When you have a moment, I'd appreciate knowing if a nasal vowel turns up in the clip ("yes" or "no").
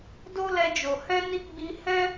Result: yes